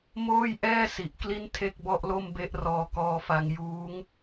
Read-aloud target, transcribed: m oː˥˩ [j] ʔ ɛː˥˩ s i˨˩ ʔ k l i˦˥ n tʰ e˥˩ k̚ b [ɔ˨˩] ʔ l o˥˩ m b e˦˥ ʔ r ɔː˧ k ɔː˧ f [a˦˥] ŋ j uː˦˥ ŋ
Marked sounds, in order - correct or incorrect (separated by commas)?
correct, incorrect, incorrect